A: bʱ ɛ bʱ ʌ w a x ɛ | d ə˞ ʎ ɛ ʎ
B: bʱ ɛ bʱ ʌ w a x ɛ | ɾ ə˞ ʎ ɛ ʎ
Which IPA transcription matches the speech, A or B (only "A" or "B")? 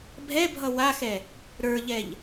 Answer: B